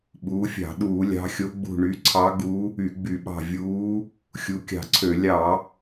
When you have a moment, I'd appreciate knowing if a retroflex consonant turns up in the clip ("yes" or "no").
yes